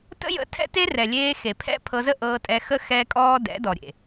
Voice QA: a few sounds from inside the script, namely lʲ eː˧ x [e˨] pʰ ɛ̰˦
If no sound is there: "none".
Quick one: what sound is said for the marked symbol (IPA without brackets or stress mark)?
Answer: e˨